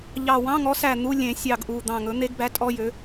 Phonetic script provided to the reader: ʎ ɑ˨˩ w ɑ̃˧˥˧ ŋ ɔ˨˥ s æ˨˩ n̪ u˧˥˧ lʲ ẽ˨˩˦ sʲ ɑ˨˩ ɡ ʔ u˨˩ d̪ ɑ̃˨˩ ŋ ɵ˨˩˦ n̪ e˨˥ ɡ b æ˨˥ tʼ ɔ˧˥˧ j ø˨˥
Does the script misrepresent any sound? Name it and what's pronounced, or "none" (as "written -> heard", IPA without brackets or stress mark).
none